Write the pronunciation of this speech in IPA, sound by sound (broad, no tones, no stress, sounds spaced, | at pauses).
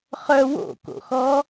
χ œ w o̰ k o̰ x ɔ